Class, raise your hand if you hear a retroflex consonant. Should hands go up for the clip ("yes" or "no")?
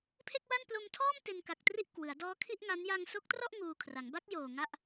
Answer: no